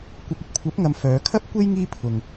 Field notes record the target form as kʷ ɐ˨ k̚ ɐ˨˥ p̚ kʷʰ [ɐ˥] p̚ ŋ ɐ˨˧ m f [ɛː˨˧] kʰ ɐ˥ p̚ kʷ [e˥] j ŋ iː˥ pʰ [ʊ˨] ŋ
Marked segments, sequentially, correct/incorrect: incorrect: ɐ˨˥, incorrect: œː˨˧, correct, correct

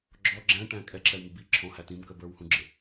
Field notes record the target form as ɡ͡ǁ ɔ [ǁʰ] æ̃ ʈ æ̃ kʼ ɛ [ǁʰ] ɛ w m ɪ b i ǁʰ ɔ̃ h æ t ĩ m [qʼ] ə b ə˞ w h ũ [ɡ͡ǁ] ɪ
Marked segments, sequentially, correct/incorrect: incorrect: ɡ͡ǁ, correct, incorrect: k, correct

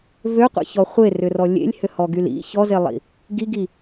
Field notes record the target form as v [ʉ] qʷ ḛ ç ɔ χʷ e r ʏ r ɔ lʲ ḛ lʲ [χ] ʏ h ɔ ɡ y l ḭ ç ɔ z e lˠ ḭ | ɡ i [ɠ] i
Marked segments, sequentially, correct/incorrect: incorrect: ø, incorrect: h, incorrect: ɡ

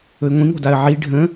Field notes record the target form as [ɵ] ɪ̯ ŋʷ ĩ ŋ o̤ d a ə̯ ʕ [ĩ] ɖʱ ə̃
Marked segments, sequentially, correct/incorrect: correct, incorrect: i

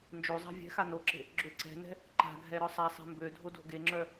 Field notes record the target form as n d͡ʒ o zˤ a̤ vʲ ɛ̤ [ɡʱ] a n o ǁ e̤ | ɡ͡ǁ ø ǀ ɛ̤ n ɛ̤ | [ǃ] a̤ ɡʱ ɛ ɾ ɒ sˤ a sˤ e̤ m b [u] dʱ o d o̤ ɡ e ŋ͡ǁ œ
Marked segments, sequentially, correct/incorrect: incorrect: x, correct, incorrect: ø

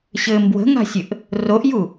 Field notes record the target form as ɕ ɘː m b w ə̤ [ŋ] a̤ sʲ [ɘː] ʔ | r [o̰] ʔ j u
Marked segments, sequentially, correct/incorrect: correct, incorrect: ɘ, incorrect: o

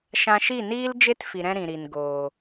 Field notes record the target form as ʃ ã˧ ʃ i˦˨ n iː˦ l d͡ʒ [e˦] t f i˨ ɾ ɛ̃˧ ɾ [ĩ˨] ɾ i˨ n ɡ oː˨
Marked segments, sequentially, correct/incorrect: correct, correct

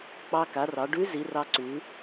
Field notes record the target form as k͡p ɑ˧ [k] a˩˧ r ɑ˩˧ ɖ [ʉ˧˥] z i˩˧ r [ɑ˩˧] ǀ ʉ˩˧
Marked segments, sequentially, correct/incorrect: correct, correct, incorrect: ɑ˧

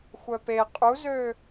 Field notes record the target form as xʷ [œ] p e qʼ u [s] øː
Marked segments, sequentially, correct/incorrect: correct, incorrect: z

